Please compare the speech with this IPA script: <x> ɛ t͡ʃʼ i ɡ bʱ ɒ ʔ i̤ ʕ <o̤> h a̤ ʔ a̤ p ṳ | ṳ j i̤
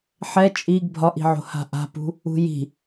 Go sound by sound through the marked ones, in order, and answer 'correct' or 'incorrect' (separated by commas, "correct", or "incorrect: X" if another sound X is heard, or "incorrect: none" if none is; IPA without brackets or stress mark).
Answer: incorrect: ħ, correct